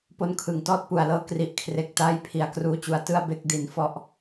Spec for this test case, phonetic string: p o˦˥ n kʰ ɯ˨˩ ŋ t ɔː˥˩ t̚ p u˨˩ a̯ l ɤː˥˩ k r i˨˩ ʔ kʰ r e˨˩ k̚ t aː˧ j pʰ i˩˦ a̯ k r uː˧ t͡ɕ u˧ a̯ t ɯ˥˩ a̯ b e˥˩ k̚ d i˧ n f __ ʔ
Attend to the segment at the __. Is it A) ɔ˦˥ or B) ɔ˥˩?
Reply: B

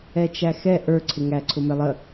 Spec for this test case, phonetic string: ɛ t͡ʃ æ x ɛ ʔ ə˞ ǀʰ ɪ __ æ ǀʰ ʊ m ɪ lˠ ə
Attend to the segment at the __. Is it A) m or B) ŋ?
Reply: B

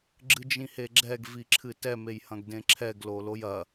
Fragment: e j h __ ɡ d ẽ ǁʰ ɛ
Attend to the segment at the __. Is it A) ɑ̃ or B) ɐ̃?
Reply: B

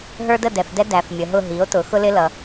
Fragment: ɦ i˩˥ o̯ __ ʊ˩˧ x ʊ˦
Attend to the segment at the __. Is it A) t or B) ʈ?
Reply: A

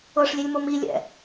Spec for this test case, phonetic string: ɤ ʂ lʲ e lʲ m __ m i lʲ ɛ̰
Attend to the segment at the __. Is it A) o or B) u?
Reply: A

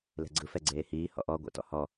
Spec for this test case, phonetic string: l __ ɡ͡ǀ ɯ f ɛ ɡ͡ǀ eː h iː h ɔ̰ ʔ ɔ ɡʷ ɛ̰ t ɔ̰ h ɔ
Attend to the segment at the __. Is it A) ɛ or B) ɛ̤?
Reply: B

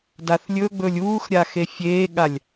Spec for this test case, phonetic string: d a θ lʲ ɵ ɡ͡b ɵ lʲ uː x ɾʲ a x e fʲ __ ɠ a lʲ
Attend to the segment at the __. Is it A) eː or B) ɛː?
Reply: A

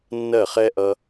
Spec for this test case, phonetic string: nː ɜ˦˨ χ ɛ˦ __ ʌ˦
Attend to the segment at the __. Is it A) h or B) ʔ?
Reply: B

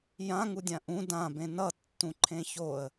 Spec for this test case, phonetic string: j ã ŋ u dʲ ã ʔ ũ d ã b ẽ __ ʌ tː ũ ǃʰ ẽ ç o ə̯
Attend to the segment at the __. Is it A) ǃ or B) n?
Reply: B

